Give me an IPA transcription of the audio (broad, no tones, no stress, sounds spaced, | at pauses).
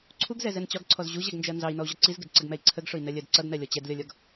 ǀʰ u ɡ z ɛ z ɛ n t͡ɕ ɒ ɡ ǀʰ ɔ z ʑ u ʑ ɛ ɡ n d͡ʒ ɜ n z ɑ i̯ n ɔ u̯ ʑ ɒ ǀ i z ɡ ɪ d ǀ ə ɡ m ɛ i̯ ǀʰ ə ɡ ʂ ʊ i̯ n ɜ lʲ ɜ d ǀ ʌ d n ɜ lʲ ɔ t͡ɕ ɛ d lʲ ɒ lʲ ɒ ɡ